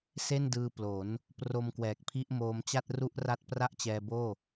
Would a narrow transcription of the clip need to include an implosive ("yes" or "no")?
no